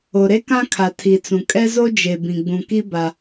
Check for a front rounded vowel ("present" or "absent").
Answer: absent